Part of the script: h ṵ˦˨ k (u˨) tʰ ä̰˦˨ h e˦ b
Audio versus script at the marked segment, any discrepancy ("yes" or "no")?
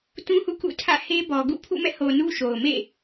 yes